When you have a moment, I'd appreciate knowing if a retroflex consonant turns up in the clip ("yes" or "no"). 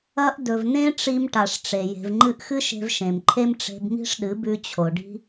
yes